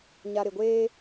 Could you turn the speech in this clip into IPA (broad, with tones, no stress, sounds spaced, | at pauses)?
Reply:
ɲ a˨ ɾ ɪ˨ ɡʷ eː˦